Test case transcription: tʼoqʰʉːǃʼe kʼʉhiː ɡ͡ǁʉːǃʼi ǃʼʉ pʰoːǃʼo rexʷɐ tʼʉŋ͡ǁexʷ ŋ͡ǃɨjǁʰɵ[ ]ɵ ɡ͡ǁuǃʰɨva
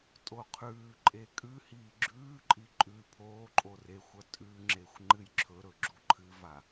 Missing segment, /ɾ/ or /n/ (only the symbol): ɾ